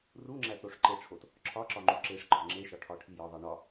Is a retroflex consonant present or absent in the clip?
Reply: present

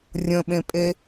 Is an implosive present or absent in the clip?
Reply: present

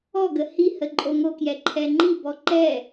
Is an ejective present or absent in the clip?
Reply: present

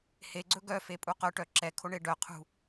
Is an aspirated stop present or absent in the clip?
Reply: present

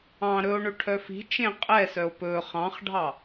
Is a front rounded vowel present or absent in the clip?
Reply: present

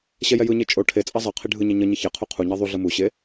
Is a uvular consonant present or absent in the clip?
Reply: present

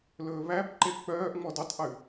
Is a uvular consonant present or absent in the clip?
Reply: absent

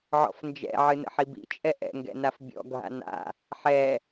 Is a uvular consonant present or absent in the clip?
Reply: absent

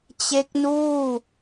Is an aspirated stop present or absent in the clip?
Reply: absent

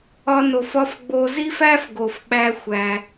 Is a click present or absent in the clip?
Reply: absent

